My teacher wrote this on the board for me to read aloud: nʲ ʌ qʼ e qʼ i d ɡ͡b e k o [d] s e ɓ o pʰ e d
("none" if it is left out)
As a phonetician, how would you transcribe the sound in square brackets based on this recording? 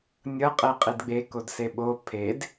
d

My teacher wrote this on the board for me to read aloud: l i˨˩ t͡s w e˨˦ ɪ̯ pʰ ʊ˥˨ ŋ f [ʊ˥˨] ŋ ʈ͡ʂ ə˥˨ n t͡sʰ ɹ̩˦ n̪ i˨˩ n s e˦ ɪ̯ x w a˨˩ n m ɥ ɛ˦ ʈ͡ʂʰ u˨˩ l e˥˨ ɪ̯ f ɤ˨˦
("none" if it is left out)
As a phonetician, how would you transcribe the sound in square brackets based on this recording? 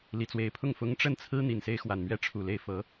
ʊ˦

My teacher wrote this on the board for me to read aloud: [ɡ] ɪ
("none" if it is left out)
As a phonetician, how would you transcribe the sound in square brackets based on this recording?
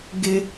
ɡ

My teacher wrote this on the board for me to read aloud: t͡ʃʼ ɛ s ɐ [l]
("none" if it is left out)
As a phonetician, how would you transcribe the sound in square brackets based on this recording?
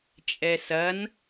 n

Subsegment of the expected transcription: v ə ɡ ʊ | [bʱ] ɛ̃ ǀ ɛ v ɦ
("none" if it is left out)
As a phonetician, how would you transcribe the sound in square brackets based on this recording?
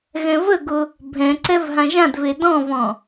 bʱ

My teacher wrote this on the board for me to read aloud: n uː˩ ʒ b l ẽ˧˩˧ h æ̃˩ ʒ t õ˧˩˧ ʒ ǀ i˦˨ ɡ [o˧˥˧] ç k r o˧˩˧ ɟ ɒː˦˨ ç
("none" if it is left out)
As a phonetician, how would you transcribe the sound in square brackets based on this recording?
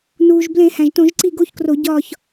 o˧˥˧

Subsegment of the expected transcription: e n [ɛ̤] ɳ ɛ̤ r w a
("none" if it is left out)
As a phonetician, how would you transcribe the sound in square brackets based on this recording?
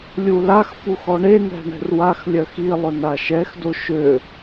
ɛ̤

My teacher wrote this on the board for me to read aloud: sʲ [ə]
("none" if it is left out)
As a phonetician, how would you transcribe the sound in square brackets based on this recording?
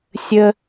ə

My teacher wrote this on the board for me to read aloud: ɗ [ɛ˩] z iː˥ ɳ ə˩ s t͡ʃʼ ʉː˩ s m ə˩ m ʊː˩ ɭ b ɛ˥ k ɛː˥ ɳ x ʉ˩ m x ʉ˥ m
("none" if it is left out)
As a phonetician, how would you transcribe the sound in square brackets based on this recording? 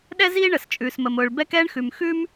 ɛ˥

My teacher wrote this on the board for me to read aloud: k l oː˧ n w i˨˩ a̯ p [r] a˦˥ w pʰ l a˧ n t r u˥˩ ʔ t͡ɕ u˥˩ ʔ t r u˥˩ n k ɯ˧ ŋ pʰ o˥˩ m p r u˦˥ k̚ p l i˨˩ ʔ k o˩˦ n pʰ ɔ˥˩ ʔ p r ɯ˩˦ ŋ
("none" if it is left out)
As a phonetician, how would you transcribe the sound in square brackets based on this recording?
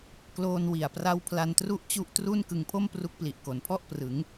r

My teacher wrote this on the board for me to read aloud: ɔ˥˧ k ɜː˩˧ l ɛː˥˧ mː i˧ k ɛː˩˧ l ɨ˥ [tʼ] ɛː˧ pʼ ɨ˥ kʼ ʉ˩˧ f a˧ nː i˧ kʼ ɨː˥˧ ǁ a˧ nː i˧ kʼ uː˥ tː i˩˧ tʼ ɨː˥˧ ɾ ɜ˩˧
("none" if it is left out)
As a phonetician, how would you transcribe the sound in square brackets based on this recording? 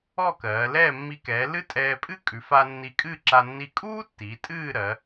tʼ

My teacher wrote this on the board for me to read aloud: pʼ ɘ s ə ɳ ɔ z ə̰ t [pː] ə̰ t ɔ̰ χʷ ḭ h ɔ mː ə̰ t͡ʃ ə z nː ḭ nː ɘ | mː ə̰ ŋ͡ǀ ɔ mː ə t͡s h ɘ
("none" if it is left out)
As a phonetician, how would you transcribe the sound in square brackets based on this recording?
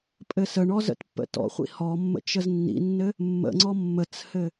pː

